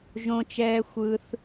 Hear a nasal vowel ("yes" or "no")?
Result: yes